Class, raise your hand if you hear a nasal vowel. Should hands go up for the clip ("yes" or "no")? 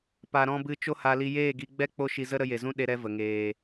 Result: yes